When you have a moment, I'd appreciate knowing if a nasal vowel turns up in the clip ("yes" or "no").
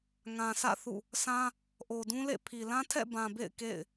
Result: yes